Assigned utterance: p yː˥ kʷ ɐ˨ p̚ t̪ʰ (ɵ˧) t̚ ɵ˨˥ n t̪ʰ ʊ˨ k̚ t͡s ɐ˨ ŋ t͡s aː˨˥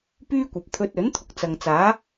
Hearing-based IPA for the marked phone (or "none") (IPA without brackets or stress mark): ɵ˧